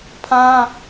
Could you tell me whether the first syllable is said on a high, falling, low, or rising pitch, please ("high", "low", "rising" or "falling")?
high